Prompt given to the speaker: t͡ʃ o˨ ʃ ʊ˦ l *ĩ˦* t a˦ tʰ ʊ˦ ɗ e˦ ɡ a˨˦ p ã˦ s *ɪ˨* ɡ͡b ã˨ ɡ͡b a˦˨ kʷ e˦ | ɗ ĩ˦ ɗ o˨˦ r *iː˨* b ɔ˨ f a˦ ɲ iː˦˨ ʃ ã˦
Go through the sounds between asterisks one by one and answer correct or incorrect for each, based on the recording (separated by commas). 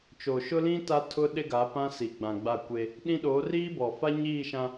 correct, incorrect, incorrect